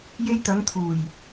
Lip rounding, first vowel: unrounded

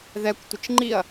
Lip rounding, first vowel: unrounded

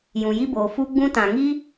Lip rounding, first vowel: rounded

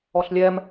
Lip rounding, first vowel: rounded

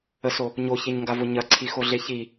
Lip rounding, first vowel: unrounded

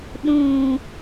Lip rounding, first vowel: rounded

